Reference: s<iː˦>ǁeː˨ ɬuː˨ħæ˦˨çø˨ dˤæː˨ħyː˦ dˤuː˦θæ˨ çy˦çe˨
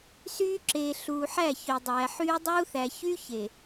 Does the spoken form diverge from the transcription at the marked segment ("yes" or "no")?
yes